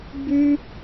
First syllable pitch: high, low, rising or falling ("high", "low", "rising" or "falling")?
high